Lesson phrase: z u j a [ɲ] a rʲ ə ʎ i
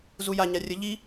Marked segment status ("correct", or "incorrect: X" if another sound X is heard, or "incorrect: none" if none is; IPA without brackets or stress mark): correct